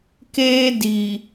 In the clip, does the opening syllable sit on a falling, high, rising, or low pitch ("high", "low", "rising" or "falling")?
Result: high